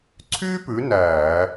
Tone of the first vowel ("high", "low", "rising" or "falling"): high